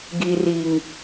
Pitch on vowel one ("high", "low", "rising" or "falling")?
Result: low